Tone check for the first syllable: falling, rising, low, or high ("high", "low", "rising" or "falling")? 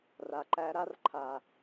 low